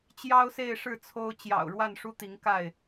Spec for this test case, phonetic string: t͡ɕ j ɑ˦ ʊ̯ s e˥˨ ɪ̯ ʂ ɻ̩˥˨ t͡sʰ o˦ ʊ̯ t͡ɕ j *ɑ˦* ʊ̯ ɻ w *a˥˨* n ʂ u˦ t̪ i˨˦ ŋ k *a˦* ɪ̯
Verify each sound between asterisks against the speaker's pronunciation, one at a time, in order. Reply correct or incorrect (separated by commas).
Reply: incorrect, correct, incorrect